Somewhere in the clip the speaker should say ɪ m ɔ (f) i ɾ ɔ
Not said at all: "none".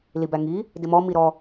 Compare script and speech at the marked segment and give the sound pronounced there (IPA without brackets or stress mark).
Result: m